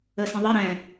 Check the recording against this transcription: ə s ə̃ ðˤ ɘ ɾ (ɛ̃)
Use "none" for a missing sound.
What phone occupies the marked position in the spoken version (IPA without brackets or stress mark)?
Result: ɛ̃